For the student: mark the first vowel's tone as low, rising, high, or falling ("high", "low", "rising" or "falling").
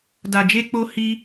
low